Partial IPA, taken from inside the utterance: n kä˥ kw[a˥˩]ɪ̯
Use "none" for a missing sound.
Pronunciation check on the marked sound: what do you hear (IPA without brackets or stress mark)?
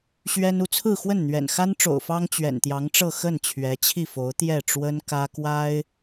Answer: a˥